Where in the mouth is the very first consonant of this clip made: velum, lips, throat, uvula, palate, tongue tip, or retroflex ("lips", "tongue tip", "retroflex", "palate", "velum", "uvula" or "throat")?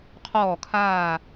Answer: uvula